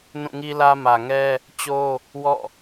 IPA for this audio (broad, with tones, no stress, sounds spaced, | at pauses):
n ũ˦˨ ŋ i˦ l ä˦ m ä˨ ŋ ɛ˦ | t͡ɕ o˦ | w ɔ̰˦˨